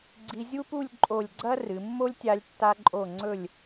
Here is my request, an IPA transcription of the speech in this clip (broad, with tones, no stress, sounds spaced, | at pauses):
ɡ͡ǀ i˧ zʲ u˥ p u˥˧ lʲ ǃʼ o˧˩ lʲ ɡ͡ǀ ɐ˥ r ɨ˩˧ mː o˥ lʲ tʲ a˧ lʲ tː a˧ ǃʼ o˧˩ ŋ͡ǀ ɵ˧˩ lʲ